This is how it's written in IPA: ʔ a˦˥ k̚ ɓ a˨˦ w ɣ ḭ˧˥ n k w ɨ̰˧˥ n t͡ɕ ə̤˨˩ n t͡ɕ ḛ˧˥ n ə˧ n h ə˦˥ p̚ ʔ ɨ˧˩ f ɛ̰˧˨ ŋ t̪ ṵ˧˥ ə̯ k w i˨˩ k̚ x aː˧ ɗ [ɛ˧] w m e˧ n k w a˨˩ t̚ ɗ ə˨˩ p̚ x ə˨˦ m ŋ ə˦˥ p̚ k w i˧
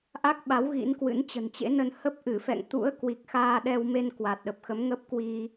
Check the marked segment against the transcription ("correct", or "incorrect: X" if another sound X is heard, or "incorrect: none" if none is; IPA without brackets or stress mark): correct